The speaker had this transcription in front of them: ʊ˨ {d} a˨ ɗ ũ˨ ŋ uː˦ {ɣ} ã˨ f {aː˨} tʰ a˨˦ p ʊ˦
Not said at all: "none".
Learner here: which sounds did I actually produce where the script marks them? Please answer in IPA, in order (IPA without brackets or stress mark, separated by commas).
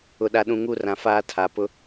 ɗ, r, aː˦